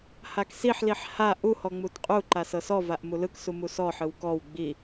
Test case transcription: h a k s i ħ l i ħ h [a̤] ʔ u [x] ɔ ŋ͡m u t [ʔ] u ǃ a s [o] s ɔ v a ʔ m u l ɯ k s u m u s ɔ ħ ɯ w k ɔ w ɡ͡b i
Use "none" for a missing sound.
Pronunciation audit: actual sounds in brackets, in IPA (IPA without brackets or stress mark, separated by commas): a, h, qʼ, ɤ